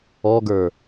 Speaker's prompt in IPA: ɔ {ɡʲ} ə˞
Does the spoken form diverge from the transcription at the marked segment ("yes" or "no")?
yes